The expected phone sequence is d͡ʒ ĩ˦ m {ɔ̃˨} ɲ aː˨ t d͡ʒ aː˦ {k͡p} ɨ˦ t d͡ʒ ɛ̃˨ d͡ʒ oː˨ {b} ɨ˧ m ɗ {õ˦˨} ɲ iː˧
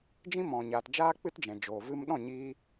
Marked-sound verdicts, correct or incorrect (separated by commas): correct, correct, incorrect, incorrect